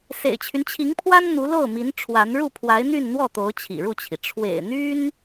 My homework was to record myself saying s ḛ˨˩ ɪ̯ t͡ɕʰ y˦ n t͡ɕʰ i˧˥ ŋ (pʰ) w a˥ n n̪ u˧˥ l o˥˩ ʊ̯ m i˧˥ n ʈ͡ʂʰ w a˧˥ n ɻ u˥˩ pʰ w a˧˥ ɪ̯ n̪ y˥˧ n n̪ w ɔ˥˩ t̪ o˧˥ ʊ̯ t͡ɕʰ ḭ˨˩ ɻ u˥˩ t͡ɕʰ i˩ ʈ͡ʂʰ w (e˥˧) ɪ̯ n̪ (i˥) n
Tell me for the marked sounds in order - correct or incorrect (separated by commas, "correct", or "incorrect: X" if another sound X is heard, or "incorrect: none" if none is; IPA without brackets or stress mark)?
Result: correct, incorrect: ḛ˨˩, incorrect: y˥